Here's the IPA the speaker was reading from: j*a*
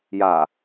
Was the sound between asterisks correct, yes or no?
yes